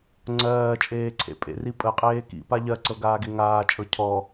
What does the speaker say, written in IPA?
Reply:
ŋ͡ǀɜːt͡ʃʼeːǀʰḛ pʼḛri pʼəqʼeː kḭpa ʎɜǀɤɡaːɡe ŋaːt͡ʃʼɤ cʰɔ

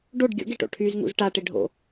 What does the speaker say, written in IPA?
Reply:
ɖoɖ ɡʲo̰ɡeʈo̰ ʈʰyzŋṵz ʈaʈe ɖʱo̰

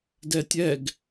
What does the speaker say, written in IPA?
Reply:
dɛtʲɛɡ

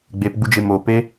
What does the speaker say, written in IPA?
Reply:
ɡ͡bepɡ͡bud͡ʒe mope

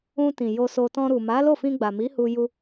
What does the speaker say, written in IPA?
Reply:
ũ˧ tĩ˨ jo˧so˧ tɔ̃˧ɾu˨ ma˨˦ lo˦˨fĩ˧ɡ͡ba˨mi˨˦ hu˧ju˧

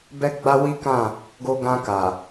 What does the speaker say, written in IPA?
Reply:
bɛ˦ɡ͡ba˦ wi˦kã˦˨ | ɡo˧ɡã˧ ka˨

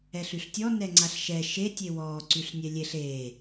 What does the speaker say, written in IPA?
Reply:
ɛɬyɬtʲɔ nɛŋ͡ǀaɬʃɛ ʃe tʲewɔː ǀyɬnʲɛlʲeɬ eː

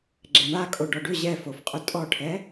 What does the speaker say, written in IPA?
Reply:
ɡ͡ǁɛɳakʼo ɖɔɖʏ ʑɛfofqʼʏ tʼɔʈʰɛ

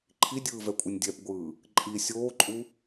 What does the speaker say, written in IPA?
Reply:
ǃʰidʲɯːvɛkʷʼɯnʲ dʲɛpɡʷɯː | ǃʼi sʲoːǃʼu

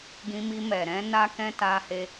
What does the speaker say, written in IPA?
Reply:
ɡĩ˧mi˧mɛ˨ ɾɛ̃˧ na˦kɛ̃˦ ta˧he˧

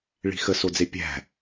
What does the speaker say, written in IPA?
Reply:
ɭi̤xə sod͡zepʲæ̤

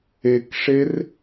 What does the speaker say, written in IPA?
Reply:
ekʂer

